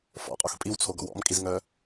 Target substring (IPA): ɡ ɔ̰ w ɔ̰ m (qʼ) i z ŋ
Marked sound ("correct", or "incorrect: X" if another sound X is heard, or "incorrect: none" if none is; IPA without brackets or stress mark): incorrect: kʼ